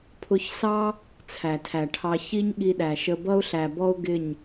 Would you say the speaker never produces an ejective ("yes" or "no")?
yes